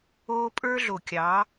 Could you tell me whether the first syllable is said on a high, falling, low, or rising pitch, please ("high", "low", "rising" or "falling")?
high